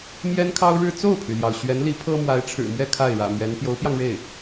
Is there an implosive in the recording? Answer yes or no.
no